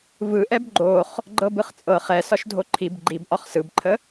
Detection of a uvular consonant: present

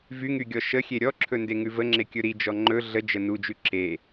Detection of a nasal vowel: absent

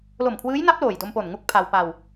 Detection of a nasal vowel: absent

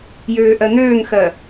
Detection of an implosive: absent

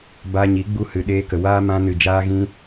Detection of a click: absent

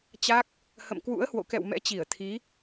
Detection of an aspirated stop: present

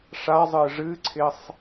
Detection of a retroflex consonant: present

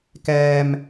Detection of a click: absent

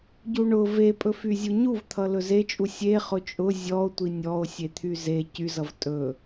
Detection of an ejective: present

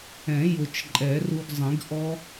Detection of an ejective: present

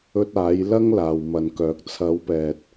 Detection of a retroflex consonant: absent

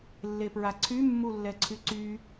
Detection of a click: present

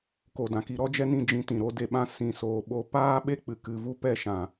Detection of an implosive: present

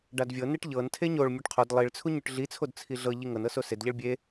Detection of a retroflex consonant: present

